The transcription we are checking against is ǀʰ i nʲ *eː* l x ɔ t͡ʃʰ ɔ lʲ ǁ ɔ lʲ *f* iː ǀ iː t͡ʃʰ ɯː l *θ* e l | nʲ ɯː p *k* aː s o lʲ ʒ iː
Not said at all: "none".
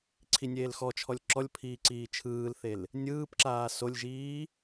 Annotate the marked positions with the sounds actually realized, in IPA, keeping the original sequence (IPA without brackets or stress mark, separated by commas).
eː, pʰ, θ, ǁ